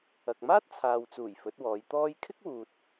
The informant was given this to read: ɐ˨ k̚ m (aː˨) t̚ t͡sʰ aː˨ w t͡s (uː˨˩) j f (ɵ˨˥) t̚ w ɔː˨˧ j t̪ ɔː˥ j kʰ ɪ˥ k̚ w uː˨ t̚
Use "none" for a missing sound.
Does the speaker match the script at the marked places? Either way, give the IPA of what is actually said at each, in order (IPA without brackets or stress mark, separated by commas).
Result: aː˥, uː˨˩, ɵ˨˥